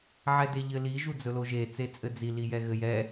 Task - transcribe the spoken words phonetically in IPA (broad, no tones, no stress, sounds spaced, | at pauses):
ʕ ɛ d e ʎ ɘ l i ʒ u d͡z ɵ l o ʒ e t͡s e t͡sʼ ɘ d͡z i l i j ɛ ɣ ɘ j ɛ